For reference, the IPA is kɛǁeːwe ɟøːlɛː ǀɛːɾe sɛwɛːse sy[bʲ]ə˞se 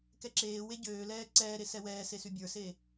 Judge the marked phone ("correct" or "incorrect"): correct